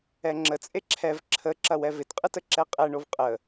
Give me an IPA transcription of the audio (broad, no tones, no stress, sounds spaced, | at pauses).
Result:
ɛ ŋ͡ǁ ə t͡sʼ e ǁʰ ɛ v ǁʰ ə ǁ ɐ w ɛ v ɪ t qʼ ɯ t ə ǁ ɛ qʼ ɛ ɳ o v qʼ ə